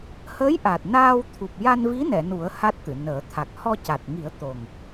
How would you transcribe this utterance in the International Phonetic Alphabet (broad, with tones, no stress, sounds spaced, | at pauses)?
h əː˧˥ j ʔ a˨˩ t̚ n aː˧ w t̪ʰ u˨˩ p̚ j a˧ n v i˧˥ n ɛ˨˩˨ n u˨˩˦ ə̯ h a˦˥ t̚ t̪ ɨ˨˩˨ n əː˨˩˦ t̪ʰ a˨˩ k̚ h ɔ˧ c a˨˩ t̚ ŋ i˨˩˦ ə̯ t̪ o˨˩ ŋ